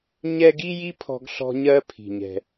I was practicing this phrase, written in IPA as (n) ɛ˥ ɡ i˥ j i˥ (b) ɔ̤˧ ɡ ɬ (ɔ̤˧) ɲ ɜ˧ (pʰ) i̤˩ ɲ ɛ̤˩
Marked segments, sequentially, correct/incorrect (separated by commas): incorrect, incorrect, correct, correct